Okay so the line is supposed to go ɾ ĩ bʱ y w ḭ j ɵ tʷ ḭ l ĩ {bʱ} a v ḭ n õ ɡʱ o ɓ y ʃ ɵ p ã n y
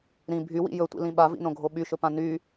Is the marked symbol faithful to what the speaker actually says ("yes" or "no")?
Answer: no